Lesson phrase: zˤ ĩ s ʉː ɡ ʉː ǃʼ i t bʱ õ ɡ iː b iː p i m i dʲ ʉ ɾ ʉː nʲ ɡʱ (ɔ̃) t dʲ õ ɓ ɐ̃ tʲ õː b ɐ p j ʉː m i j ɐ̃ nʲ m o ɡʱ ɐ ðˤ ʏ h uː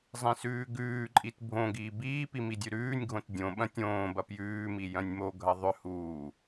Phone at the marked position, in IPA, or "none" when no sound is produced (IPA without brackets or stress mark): õ